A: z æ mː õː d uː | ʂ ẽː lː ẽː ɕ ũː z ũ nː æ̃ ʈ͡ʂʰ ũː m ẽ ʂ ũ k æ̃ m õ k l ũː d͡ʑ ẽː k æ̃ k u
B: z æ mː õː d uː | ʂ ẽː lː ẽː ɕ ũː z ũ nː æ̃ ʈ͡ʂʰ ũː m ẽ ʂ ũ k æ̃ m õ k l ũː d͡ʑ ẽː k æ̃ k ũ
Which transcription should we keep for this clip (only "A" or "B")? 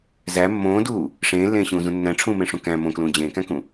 B